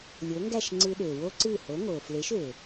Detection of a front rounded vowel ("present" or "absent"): present